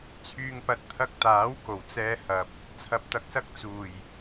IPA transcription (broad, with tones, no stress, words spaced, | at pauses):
t͡sʰyː˧ŋpɐ˧t̚ t̪ʰɐ˧k̚t̪aː˨˥w ko˨˩wt͡sɛː˧hɐ˨p̚ | t͡sʰɐ˨p̚t̪ɐ˨˥k̚sɐ˧k̚ t͡suː˨˩j